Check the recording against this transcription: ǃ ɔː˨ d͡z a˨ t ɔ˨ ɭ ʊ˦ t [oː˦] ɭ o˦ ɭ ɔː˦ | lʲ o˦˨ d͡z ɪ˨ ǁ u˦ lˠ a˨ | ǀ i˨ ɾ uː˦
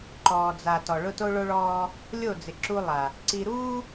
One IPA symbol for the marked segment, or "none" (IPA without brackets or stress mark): o˦